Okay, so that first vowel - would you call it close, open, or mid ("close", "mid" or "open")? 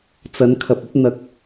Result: open